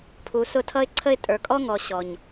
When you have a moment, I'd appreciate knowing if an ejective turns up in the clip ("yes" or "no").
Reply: yes